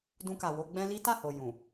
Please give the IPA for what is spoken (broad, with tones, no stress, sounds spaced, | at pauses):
d ũ˧ k a˨ w o˧ ɡ͡b ɛ̃˦ l i˦ t a˦˨ h o˨ j ũ˨